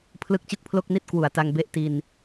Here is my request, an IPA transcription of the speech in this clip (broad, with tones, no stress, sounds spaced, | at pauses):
pʰ l ɯ˦˥ k̚ t͡ɕ ɯ˥˩ k̚ pʰ l o˥˩ k̚ n i˥˩ t̚ k w u˨˩ a̯ t a˧ ŋ b e˥˩ ʔ t i˧ n